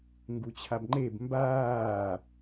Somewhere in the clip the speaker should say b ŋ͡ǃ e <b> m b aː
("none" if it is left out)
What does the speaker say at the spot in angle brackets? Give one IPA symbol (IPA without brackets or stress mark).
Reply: b